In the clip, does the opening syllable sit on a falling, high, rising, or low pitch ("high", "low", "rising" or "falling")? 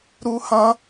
high